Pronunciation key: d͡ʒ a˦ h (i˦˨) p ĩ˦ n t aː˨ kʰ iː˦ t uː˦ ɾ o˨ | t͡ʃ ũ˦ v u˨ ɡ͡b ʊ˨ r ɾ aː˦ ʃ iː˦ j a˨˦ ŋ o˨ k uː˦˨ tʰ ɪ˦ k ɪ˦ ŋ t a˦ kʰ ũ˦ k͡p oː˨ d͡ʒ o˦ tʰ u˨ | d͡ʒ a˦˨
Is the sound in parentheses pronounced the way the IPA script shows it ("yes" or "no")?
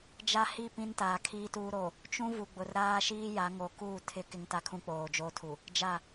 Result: yes